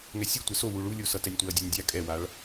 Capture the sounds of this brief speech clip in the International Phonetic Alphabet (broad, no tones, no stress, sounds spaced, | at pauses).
ŋ ɛ sʲ ɯ tʷ ɛ s o w u ɭ u lʲ o s ʌ t ɛ nʲ tʷ ɛ ɐ̯ dʲ ɛ nʲ dʲ a kʼ ɛ w a ɭ